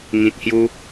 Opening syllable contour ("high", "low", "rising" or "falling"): low